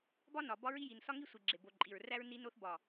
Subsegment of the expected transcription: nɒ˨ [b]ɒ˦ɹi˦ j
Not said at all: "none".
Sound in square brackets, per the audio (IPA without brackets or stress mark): b